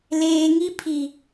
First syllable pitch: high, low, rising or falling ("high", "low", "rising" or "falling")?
low